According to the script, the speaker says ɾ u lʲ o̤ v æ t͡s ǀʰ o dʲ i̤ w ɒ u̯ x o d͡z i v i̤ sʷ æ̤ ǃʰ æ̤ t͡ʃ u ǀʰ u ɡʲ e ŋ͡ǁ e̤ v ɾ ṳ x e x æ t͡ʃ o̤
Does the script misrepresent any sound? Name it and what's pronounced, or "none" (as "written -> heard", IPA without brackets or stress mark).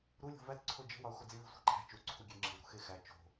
dʲ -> d͡ʒ